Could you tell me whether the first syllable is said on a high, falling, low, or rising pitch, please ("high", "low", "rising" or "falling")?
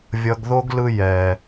low